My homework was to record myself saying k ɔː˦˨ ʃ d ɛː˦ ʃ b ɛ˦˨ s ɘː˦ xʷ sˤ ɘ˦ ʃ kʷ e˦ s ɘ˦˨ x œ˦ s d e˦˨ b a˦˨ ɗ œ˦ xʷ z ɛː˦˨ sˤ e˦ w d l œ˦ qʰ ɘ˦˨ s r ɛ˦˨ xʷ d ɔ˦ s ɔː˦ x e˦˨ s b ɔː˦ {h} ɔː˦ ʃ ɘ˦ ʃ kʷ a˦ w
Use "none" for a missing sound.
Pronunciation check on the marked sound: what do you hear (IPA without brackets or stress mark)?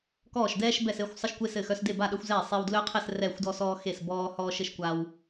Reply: h